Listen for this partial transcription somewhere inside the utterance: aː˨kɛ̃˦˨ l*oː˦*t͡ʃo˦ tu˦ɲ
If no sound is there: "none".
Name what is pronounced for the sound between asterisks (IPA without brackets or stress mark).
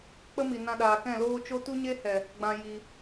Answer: oː˦